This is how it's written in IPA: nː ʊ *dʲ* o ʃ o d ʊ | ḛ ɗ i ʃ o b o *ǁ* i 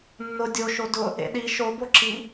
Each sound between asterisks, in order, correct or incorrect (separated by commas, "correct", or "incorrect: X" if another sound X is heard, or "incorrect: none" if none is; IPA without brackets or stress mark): correct, correct